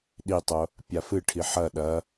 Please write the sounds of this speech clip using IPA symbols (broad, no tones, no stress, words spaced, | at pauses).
ɗitˤo | pʲafɨʈʰi ħɐ ɗɐ